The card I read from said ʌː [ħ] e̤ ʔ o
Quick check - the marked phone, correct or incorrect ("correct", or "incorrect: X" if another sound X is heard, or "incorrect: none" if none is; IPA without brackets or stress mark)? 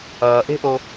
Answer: incorrect: ʔ